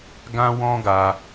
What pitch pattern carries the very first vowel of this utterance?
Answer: high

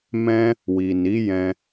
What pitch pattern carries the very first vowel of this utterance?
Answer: high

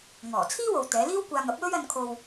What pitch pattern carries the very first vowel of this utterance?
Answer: low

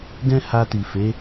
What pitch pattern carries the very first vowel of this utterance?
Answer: high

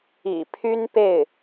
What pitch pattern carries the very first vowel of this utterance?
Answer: low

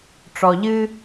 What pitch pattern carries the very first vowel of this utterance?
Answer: low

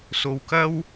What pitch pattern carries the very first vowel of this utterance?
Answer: low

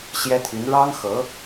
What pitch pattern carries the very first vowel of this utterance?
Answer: high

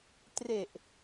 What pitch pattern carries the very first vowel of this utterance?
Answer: low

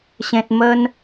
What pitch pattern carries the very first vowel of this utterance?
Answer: high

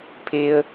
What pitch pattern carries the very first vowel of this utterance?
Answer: high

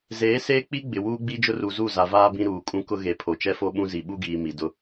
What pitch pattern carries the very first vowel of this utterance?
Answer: rising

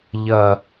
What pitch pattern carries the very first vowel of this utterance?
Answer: low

